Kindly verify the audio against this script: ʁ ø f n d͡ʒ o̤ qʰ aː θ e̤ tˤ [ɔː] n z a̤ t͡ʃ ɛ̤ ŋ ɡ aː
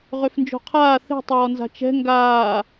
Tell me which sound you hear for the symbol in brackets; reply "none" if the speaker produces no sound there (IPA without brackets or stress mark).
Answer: ɔː